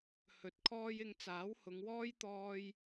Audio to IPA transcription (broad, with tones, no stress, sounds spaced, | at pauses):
h ɵ˨˥ t̚ kʰ ɔː˥ j ɪ˧ ŋ t͡s aː˨˥ w h ʊ˨˧ ŋ w ɔː˥ j t̪ ɔː˥ j